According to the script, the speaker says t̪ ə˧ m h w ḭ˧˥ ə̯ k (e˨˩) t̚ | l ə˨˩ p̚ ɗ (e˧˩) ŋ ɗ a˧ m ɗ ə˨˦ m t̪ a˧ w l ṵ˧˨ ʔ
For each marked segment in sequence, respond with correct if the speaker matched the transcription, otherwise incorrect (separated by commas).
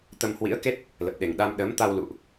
incorrect, incorrect